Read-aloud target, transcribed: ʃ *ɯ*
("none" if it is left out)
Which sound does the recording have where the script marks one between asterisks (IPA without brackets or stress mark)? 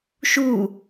u